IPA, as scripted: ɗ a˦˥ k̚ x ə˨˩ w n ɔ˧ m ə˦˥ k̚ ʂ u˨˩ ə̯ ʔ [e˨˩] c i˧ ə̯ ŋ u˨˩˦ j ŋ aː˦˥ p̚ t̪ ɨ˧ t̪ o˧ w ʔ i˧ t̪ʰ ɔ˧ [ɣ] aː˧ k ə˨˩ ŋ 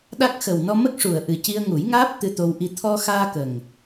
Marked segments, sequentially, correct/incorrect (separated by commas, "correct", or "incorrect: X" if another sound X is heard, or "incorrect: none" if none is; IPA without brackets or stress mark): incorrect: ɨ˨˩, incorrect: x